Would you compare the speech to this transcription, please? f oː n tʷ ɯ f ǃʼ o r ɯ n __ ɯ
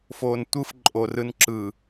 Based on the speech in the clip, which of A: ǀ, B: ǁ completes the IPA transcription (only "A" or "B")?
B